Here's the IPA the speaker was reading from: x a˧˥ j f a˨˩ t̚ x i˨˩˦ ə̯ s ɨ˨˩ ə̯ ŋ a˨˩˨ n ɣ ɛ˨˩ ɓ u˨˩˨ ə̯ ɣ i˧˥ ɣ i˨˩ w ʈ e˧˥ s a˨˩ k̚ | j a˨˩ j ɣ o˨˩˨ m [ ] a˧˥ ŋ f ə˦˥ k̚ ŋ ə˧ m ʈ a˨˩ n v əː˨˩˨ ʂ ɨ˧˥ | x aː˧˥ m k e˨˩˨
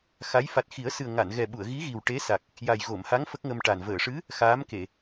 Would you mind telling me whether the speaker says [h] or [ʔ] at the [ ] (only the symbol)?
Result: h